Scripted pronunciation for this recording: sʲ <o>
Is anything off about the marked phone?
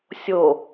no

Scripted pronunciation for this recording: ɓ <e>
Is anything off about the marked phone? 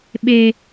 no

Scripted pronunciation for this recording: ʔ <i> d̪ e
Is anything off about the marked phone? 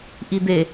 no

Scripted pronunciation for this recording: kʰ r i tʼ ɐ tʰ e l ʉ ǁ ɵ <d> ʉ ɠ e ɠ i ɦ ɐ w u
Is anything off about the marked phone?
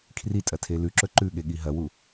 yes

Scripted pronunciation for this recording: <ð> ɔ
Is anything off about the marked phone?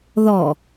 no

